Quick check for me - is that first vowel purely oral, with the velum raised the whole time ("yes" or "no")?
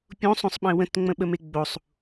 no